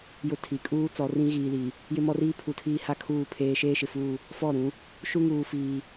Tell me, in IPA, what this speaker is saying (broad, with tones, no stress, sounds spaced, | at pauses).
j ʊ˦ tʰ i˨ kʼ uː˦ t͡s ɔ˨ r ĩ˦ ɣ iː˨ l i˨ | j ɪ˦ m ɔ˦ r iː˦ pʰ u˨ tʰ iː˦ h a˦ kʰ uː˦˨ pʰ eː˦ ʃ eː˦ ʃ ɪ˨ f uː˦˨ | f ɔ˦˨ ɾ ũ˨˦ | ʃ u˦ ŋ uː˨ f iː˦